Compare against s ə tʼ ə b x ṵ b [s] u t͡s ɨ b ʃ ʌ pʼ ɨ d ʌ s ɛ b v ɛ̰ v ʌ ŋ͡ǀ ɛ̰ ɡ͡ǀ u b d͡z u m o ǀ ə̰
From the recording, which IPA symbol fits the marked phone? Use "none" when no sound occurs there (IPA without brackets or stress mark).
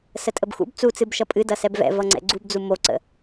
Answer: t͡s